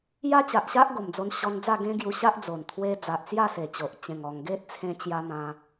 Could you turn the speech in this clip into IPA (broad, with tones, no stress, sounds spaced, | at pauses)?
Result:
j a˦ t͡ɕ a˨ ʔ ɕ a˦ ʔ ɡ o˨˩ m d͡z o˧ n ɕ ɔ˧ n d͡z a˥˧ ɡ ẽ˦ ɡ j u˧ ɕ a˦ ʔ d͡z o˨˩ n t̪ʰ w e˧ d͡z a˨ ʔ t͡s j a˥˧ s e˨˩ t͡ɕ o˨ ʔ t͡ɕ ẽ˨˩ ŋ ɔ˨˩ ŋ ɡ e˦ t̚ t͡sʰ ẽ˧ t͡ɕ j a˧ n̪ ã˧